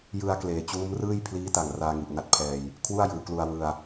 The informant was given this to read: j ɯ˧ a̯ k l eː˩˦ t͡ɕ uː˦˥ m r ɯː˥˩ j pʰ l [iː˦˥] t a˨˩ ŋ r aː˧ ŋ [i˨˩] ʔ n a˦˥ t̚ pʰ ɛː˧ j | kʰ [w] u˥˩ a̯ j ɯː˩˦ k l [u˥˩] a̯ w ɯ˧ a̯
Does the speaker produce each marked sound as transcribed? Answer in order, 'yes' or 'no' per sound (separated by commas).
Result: yes, yes, yes, no